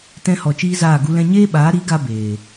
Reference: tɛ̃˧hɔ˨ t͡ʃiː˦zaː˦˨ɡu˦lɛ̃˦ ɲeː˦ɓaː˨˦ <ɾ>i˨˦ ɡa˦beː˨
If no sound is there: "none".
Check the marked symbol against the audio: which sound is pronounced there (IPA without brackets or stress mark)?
ɾ